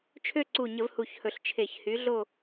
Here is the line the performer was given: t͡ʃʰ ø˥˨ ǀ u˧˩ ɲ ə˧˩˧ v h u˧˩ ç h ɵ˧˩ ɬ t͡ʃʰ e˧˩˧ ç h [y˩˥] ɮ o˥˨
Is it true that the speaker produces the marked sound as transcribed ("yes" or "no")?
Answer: yes